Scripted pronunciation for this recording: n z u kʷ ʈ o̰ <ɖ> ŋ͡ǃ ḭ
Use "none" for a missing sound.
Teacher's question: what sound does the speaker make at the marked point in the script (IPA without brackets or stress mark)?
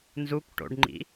ɖ